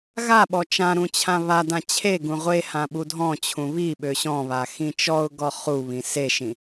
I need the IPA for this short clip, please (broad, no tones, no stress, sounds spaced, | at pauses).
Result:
ɣ a ɓ ɔ t͡ʃ ã ɾ ũ t͡ɕʰ ã β a d ã t͡ɕʰ e ɡ ũ ʁʷ e h ã ɓ u dʱ ɔ̃ t͡ɕʰ ũ β i ɓ ø ɕ ɔ̃ β a x ĩ t͡ʃ ɔ ʊ̯ ɡ ɔ χ u β ĩ s e ʃ ĩ